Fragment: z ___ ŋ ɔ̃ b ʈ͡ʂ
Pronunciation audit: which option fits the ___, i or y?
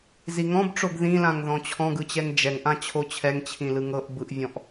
i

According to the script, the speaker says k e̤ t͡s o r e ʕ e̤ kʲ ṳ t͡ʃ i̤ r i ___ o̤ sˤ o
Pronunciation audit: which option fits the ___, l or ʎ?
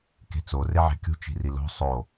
l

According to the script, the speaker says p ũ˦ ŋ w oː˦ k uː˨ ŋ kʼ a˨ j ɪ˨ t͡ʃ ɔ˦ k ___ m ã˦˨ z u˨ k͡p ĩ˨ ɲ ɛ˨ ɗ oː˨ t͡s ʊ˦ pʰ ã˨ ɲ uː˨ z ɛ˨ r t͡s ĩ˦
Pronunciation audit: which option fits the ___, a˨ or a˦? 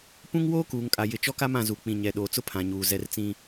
a˦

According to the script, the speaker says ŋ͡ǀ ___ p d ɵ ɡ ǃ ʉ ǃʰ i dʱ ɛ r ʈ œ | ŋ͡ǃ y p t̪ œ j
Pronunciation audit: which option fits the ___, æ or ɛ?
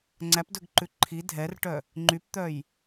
æ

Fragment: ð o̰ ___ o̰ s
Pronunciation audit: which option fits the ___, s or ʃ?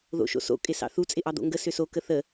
ʃ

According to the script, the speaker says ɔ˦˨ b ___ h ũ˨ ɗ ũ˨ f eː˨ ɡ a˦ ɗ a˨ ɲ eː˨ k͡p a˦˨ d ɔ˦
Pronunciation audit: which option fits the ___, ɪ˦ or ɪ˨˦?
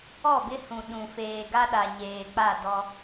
ɪ˦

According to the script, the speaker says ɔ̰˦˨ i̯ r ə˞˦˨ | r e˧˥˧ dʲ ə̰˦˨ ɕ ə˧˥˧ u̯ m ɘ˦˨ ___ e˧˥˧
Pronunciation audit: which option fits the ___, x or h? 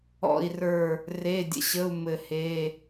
h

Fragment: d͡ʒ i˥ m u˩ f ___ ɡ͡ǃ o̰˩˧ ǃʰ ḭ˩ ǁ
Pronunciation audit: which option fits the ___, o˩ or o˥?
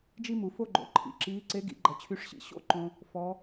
o˥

